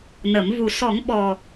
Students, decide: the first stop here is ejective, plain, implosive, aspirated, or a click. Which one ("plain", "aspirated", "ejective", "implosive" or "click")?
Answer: implosive